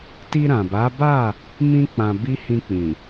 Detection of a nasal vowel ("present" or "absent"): present